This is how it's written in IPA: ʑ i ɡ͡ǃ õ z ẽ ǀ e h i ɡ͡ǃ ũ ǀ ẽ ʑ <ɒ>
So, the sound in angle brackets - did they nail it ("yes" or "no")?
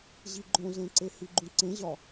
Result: yes